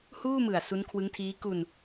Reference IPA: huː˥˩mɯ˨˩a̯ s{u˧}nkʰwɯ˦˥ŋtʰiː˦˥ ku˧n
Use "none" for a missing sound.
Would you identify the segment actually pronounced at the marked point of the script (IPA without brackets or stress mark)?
u˦˥